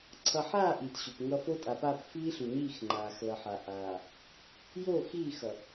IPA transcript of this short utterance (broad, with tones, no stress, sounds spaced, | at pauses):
ǀʰ ʌ˨ ħ aː˦˨ ʔ iː˨ t ɕ u˨ p ŋ ʌ˦ f o˦ tʼ a˨ p a˦˨ p f iː˦ ɬ u˨ ɲ iː˦˨ x ŋ͡ǃ aː˨ x l ʌ˨ ħ a˨ ʔ aː˨ | j o˦˨ x iː˦˨ x ʌ˨